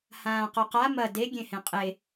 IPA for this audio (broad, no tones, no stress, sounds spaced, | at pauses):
h ãː q o q a m ɐ d e ɡʲ ẽ h ẽ qʼ e